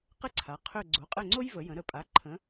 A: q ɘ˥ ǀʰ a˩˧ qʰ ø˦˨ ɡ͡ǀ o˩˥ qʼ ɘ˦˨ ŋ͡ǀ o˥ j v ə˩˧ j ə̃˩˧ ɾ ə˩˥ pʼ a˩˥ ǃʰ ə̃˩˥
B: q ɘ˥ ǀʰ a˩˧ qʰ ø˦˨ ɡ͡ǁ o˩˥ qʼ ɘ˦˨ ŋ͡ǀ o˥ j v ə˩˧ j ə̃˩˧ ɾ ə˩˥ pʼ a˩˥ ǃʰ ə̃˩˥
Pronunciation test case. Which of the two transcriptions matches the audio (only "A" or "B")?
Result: A